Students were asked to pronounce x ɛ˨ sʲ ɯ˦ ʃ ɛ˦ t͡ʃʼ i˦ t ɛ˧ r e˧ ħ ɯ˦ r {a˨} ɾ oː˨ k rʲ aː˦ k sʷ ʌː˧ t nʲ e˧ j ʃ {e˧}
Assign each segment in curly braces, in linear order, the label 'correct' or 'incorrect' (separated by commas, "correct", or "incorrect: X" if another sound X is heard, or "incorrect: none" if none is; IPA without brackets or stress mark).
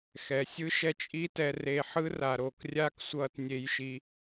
correct, incorrect: i˧